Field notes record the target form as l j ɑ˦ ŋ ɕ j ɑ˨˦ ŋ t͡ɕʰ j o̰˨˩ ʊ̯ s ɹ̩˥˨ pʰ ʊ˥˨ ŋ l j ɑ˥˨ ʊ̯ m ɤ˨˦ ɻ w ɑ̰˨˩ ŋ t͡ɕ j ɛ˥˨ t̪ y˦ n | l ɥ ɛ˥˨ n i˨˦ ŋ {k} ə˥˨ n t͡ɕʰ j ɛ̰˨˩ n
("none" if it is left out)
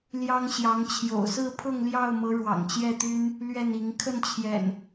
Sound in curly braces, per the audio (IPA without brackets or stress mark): kʰ